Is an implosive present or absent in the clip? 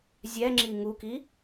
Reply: absent